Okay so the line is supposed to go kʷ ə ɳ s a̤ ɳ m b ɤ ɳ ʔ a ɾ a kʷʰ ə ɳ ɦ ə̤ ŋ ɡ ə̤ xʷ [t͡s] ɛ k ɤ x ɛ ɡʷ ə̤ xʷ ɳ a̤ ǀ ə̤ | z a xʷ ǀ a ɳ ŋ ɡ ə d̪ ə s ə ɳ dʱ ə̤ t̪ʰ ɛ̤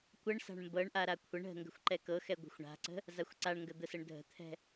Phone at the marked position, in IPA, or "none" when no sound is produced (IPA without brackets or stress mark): ǃ